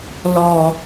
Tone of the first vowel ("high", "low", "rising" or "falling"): low